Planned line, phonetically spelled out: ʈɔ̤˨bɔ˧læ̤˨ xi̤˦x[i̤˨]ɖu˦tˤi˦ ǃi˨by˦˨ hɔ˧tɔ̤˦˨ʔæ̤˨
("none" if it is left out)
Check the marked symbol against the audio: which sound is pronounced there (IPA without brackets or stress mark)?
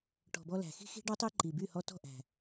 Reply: i̤˦